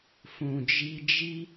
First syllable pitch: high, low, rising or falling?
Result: low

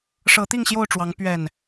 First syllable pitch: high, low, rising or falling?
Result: rising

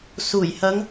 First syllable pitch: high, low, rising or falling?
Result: low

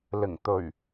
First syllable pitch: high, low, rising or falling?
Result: low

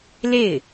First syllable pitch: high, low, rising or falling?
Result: falling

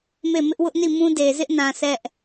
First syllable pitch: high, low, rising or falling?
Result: falling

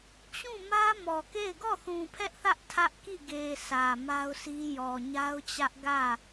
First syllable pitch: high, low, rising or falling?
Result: falling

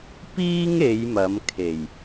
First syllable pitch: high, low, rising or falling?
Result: high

